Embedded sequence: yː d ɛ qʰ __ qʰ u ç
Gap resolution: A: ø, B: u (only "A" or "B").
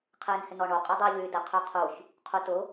A